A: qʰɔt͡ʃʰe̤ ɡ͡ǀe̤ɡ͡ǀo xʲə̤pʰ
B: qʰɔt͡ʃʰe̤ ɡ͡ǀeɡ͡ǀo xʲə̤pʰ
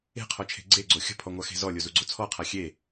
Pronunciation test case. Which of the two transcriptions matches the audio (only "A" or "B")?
B